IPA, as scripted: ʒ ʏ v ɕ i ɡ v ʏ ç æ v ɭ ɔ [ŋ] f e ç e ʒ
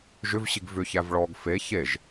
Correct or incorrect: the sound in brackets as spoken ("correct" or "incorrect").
incorrect